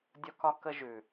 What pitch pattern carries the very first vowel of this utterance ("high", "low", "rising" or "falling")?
high